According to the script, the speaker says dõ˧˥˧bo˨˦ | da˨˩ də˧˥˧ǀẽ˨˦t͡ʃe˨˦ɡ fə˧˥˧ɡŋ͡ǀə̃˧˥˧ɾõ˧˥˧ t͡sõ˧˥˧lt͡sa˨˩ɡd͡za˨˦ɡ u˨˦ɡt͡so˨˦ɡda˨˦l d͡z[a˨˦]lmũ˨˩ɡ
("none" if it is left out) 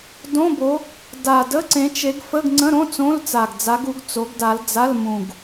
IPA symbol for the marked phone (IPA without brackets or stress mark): a˧˥˧